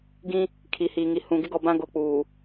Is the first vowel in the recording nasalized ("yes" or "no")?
yes